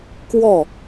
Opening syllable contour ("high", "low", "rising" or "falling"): falling